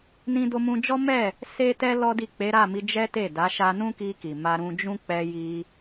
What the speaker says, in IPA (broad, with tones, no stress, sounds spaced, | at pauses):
n ĩ˧ d o˧ m ũ˧ d͡ʒ ɔ˦ m ɛ˦˨ | s e˦ t ɛ˦ l ɔ˦ d i˦˨ k͡p e˨˦ ɾ a˦˨ m i˧ d͡ʒ ɛ˦ t e˦˨ d a˨˦ ʃ a˧ n ũ˦ k i˧ k i˨ m a˧ ɾ ũ˧ d͡ʒ ũ˦ k͡p ɛ˧ j i˧